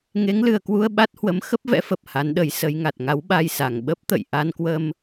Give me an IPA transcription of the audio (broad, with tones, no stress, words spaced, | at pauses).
ŋe˨˦ŋlɨ˨˩ə̯kwu˧ə̯ ɓa˦˥t̚hwə˨˦m xə˦˥p̚vɛ̰˧˥fə˨˩p̚ ha˨˦nɗə˨˦jsə˨˦jŋa˨˩t̚ ŋa˨˦wɓa˧jsa˨˩ŋ ɓə˦˥p̚t̪ə̰˧˨j ʔa˧nkwə˧m